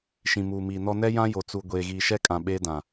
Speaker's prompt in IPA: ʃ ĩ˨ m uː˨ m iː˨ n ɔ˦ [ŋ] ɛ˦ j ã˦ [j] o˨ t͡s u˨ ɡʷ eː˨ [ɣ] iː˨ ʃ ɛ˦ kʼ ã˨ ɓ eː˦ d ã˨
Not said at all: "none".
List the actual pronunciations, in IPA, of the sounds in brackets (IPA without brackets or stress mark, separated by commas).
n, j, ɣ